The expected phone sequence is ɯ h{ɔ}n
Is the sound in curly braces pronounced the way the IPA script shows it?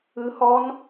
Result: yes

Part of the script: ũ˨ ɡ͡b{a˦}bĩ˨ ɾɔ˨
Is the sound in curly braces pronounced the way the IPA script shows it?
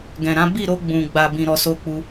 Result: no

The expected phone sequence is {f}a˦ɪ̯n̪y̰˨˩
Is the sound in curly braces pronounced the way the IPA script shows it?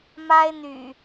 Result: no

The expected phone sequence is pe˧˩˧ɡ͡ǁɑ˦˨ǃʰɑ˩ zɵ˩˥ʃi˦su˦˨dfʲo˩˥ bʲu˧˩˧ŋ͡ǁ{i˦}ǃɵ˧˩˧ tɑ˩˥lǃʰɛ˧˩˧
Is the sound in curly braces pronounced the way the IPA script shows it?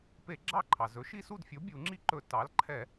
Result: yes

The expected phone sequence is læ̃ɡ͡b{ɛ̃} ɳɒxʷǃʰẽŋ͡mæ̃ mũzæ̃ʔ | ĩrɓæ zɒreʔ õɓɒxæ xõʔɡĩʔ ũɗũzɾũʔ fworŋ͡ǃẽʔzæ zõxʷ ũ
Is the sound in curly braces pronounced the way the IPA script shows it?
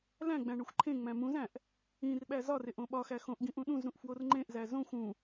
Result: no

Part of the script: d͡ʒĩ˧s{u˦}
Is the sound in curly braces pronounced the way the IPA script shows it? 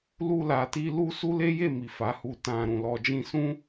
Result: no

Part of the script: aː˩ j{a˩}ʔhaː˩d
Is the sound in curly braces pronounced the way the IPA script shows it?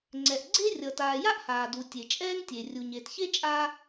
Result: no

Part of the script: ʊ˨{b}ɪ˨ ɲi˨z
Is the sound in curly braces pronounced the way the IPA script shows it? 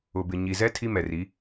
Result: yes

